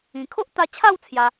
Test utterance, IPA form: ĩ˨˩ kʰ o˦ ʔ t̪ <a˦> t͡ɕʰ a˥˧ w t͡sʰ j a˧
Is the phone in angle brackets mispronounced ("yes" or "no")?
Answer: yes